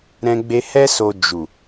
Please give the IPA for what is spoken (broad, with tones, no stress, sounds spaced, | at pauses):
ɾ ɛ̃˧ ɡ͡b e˧ h ɛ˦ s o˧ d͡ʒ u˨